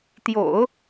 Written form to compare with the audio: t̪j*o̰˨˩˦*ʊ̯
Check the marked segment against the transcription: correct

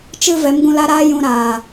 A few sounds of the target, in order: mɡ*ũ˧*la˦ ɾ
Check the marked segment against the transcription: correct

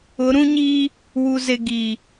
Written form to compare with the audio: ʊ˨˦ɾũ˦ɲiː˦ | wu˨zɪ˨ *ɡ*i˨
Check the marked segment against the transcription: correct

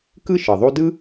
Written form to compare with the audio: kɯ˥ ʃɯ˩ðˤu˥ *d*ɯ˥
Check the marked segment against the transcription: correct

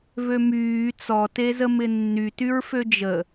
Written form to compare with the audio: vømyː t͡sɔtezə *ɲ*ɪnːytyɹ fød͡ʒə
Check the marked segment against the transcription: incorrect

